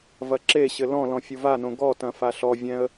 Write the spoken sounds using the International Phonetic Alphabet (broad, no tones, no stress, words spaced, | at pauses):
vɐǁeɕɘ lɔ̃ lɔ̃fʲuvanõ ɡɔtɐ̃ faɬɔvʲɛ̃ə̯